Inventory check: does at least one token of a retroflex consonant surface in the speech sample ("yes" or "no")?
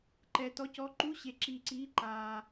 no